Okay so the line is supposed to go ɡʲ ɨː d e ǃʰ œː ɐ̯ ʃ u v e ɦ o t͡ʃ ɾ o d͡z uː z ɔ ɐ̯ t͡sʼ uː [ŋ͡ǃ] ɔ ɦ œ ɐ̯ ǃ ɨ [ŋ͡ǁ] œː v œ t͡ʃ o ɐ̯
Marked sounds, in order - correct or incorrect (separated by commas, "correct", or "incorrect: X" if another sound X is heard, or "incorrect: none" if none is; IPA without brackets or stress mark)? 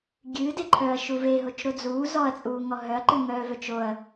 incorrect: ŋ, incorrect: ŋ